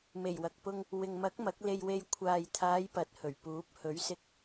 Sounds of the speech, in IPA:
me˨˩jwɐ˨k̚pʊ˧ŋ | wɪ˨ŋmɐ˨˥k̚ mɐ˨˥k̚le˧jwe˧j kʷʰaː˨jt̪ʰaː˨˧j pɐ˨˥t̚hɵ˨˩ɥpuː˨˥p̚ hɵ˨˥ɥsɪ˧k̚

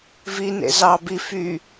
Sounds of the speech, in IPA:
vinḛ zɑ bi fy

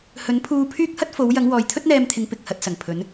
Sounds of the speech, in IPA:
hɵ˨˥npʰuː˧pʰyː˥k̚hɐ˥t̚ fo˨˧wjɐ˨˧ŋ wɔː˨jt̪ʰɵ˥t̚n̪ɛː˧mt̪ʰɪ˨˧ŋ pɪ˨k̚hɐ˧t̚ sɐ˨˩ŋpʰɵ˨˧n

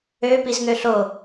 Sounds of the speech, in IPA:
ø pizŋøɬo

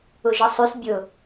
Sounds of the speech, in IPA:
ʊʒəsˤʉs bʲʊ

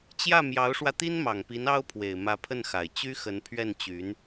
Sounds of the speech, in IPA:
t͡ɕjä˥˩ mjɑ˧˥ʊ̯ʂwä˧t̪i˥n mɑ˨˩ŋpi˧˥n ɑ˥ʊ̯pʰwe˨˩ɪ̯ mä˧˥pʰə˥˩nxa˨˩ɪ̯ t͡ɕy˥xə˧˥npʰɥɛ˥˩nt͡ɕy˧˥n

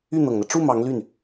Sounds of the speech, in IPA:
y˥˩n̪ɤ˨˩ŋn̪ä˦ ʈ͡ʂu˥˩ mɑ˧˥ŋly˥˩n

